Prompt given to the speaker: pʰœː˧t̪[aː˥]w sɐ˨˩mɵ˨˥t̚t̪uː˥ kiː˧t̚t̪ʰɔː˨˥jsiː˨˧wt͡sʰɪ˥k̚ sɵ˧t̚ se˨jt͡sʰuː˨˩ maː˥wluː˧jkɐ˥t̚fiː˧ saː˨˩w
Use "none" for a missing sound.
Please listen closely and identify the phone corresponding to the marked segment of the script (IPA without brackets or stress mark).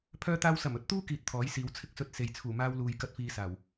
aː˧